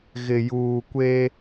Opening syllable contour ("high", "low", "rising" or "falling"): low